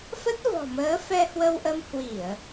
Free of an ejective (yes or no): yes